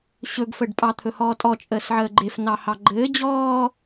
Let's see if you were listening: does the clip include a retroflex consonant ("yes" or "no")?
yes